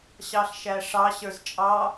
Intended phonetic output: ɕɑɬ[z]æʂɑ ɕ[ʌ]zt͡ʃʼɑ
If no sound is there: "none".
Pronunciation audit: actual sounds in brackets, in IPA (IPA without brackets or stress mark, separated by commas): ʃ, ə˞